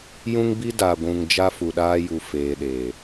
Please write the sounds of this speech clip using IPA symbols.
j ũ˦ ŋ b i˦ d a˨ ɡʷ ũ˨ ŋ d͡ʒ a˦ f u˨ ɗ aː˦ j u˨ f eː˨ ɗ eː˨

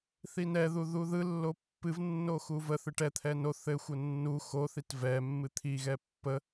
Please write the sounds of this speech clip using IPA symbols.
θ i n ɛ ð u ð u ð ɯ lː o pː ɨ v nː o x u v ə θ ɨ ʈ ɛ t̪ʰ ɛ n o θ ɘ xʷ ə nː u x o θ i t v ɛ mː ɨ t̪ʰ i ɣ ɛ pː ə

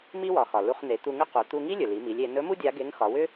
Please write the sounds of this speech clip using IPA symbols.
m i˥ w ɒ˩˧ x ɒ˩ l u˧ χ n̪ e˩˧ t̪ u˧ ŋ ʏ˥ q u˩˧ t̪ u˧ ŋ i˥ lʲ ɵ˩ l i˩˧ m i˩˧ lʲ e˩˧ n ɵ˧˥ m u˥ dʲ a˧˥ ɡ e˧˥ ŋ x ɒ˩˧ w ʏ˥

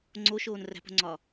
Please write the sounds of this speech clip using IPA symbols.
ŋ͡ǀ o ʃ oː n r æ̤ p o̤ ŋ͡ǀ ɒ

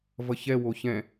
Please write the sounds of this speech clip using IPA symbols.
v ʌ ç ɛ w o ç ɛ̃

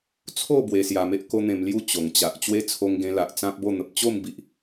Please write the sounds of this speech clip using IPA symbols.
t͡sʰ o˥˧ b w e˧ s j a˧ m e˦ ʔ k o˦ n̪ ẽ˧ m l j u˥˧ t͡ɕ o˨˩ ŋ t͡ɕ a˨ ʔ t͡ɕ w e˦ t͡sʰ o˧ ŋ ɡ ẽ˧ l a˨ ʔ t͡s ã˦ p̚ b o˥˧ n̪ ə˨ p̚ t͡ɕ o˥˧ m b i˨ ʔ

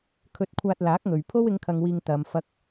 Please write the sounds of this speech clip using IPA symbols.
kʰ ɵ˧ t̚ kʷʰ aː˧ t̚ l aː˨˥ k̚ ŋ ɵ˨ ɥ pʰ o˥ w ɪ˨˧ ŋ kʰ ɐ˨ ŋ w iː˨ ŋ t̪ ɐ˨ m f ɐ˧ k̚

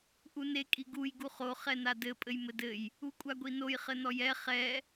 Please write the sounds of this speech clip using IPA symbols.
ʔ u n e kʼ i ɡ u j ɡ u χ o χ ɛ n a d ɘ pʼ ɘ j m ɘ d ɘ j | u kʷʼ a ɡʷ i n o j χ ɘ n ɔ j ɛ χ ɛ

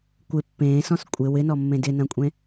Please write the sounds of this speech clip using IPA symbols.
kʷ ɪ pː ẽː s ɔ̃ s kʷʼ ɪ w ɪ n ɔ mː ẽ d ɪ n ɐ̃ kʷʼ ẽ

